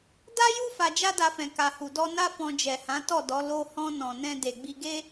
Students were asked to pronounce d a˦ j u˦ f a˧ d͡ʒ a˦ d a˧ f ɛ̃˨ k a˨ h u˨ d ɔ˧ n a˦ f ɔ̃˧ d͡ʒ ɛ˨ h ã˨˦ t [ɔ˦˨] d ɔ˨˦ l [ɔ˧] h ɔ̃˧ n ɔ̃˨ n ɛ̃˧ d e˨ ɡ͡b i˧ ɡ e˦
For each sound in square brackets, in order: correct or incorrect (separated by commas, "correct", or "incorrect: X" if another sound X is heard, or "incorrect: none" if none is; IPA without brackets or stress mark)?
correct, incorrect: o˧